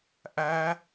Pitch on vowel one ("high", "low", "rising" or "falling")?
rising